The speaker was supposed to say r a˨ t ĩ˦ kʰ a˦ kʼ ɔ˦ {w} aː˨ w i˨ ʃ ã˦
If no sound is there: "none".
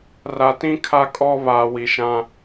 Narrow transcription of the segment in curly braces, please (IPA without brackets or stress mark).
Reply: β